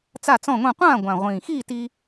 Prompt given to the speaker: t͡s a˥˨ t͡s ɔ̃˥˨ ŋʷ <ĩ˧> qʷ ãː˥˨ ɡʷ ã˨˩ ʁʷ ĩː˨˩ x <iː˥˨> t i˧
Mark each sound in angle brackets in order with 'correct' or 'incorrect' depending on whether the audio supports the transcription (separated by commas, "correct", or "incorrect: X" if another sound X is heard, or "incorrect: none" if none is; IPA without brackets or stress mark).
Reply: incorrect: ĩ˥˨, correct